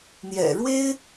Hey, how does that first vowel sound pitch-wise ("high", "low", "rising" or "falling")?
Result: low